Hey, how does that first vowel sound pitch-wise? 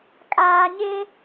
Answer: low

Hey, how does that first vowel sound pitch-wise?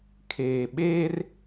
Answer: low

